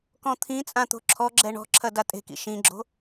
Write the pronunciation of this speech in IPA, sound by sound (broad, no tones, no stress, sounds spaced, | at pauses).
k ɔ̃ t̪ʰ ĩ t͡sʼ ã t̪ o̤ ǁʰ ɔ ɡ͡ǁ ɛ ɳ ɔ̤ ǁʰ ɐ d a tʼ e̤ k ḭ ʃ ĩ ɡ͡ǁ o̤